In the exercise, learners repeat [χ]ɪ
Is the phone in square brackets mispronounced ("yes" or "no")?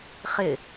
no